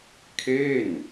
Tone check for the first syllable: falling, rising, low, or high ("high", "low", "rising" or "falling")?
falling